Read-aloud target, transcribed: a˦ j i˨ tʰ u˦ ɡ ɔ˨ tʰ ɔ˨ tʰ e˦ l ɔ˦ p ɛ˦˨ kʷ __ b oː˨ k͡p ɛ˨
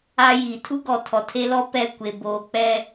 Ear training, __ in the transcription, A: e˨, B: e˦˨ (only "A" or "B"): A